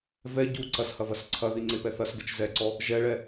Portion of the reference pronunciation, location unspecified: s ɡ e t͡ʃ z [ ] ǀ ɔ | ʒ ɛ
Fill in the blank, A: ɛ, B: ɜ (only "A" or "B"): A